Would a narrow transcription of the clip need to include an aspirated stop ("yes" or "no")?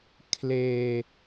yes